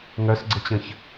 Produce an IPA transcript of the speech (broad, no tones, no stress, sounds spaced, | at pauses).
ŋ œ s ɡ͡ǀ ə t͡ɕ ə̃ ç